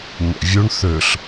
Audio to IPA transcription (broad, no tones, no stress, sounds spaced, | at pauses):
ɲ æ̰ vʲ u ɳ θ ø ɬ